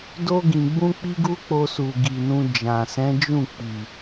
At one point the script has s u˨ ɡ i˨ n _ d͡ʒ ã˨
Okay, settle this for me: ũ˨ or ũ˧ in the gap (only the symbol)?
ũ˧